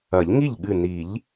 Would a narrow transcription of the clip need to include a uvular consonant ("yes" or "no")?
no